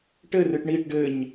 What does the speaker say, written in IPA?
ʈɘrɨʈ ɳiʈ ɖɘɲ

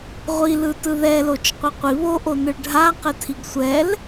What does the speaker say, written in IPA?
ʁʷilɯtɯ ðɛlot͡ʃqʷɘ qʷi βoʔonɯɭ ɖʱaqɘtʰiɡ sʷɛl

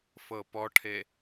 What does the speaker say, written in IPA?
fɤpɔʈʰe

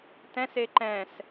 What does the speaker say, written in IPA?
tɛ̃se ǃɛ̃s

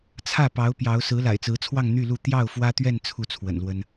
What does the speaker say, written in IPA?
t͡sʰä˥˩pɑ˧˥ʊ̯ pjɑ˧˥ʊ̯ sɹ̩˧˥la̰˨˩ɪ̯t͡sɹ̩˧˥t͡sʰwɑ˥˧ŋ n̪y˥˧lu˥˧ t̪jɑ˥˩ʊ̯fwä˥t̪ɥɛ˥˧n t͡sʰu˥˩t͡sʰwə̰˨˩nlwə˥n

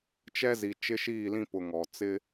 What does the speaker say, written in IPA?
t͡ʃɛ˦zi˨ t͡ʃɪ˦ʃiː˦˨lĩ˦pʊ˨ ŋɔ˨ t͡sɪ˦

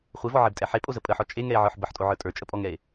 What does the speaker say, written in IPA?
χʷevɔʕebtʼɛ ħepʼozə pʼəħɔ t͡ʃʼeŋɛe̯ʕə˞ħ bəħtʼoʕə˞ tʼə˞t͡ʃʼəpʼɔŋɛe̯

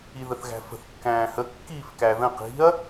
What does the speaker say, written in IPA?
iðəθɣæ̤fə̤θ kːæ̃ːhə kːiːfkæðə̃ qi̤ɐ̯

